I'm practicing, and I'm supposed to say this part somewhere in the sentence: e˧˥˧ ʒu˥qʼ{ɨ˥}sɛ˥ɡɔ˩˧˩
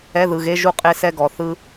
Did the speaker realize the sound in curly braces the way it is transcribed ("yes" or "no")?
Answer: no